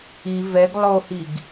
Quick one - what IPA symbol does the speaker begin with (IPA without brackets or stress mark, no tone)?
i